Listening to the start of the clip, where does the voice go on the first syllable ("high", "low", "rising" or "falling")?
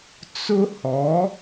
high